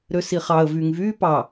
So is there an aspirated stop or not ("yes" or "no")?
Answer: no